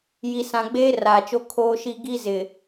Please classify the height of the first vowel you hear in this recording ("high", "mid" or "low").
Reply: high